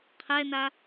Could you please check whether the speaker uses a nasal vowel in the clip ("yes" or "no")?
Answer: no